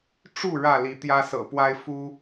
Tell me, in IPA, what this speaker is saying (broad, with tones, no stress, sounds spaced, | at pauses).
ʈ͡ʂ u˥˨ ɻ ä˥˨ l i˨˦ t̪ j ä˦ s ɤ̰˨˩ p w a˦ ɪ̯ f u˦